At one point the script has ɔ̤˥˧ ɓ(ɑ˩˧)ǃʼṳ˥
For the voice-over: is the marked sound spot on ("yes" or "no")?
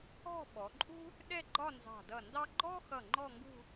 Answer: no